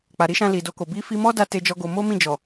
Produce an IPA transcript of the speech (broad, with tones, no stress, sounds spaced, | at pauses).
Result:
k͡p a˨ ɾ i˨˦ ʃ ã˧ l i˨ d o˧ k o˨ b i˧ f i˧ m ɔ˦ d a˧ t e˦ d͡ʒ ɔ˦ ɡ o˧ m o˦ m ĩ˦˨ d͡ʒ ɔ˨